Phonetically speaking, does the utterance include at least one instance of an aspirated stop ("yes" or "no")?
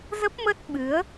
no